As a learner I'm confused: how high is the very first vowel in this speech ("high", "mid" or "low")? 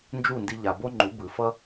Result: high